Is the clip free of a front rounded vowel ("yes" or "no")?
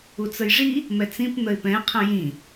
yes